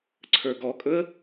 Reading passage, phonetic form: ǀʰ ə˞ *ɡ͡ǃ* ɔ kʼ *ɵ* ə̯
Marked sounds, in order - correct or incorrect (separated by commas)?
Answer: incorrect, correct